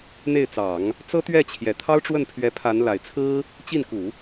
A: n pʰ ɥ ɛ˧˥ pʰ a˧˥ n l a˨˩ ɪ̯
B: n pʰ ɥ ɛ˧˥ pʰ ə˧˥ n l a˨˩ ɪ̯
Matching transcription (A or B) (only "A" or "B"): A